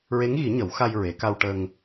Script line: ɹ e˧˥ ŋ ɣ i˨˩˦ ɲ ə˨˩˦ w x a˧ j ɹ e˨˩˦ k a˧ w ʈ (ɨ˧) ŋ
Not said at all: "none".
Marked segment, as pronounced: ə˧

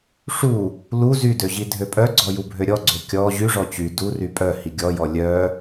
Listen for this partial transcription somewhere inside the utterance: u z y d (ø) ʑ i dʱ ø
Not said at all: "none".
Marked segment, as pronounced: ø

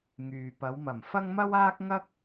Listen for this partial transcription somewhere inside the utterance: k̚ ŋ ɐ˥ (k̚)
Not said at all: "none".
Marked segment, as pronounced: k̚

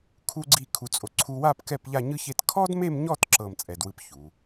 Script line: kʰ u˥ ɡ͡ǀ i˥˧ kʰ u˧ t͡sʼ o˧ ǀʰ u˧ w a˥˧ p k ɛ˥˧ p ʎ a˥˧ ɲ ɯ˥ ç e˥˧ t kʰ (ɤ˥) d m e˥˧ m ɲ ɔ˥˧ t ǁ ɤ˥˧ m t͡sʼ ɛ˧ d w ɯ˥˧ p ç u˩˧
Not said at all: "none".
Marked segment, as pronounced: ɔ˥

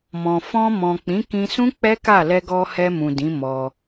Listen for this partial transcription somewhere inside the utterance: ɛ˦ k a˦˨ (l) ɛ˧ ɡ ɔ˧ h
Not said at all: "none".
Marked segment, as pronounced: l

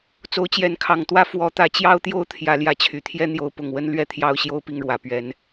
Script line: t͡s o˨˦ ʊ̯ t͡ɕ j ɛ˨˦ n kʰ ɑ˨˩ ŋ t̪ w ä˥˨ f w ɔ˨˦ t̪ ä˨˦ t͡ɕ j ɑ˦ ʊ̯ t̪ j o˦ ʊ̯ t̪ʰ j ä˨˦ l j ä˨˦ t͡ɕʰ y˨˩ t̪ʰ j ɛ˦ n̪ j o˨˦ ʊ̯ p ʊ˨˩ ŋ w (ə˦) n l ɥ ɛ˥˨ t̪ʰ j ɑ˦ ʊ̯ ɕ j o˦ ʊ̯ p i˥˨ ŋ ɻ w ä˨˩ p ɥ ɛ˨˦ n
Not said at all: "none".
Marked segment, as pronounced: ə˦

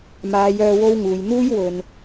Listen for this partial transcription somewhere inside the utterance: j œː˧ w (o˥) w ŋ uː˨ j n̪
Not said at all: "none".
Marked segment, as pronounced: o˥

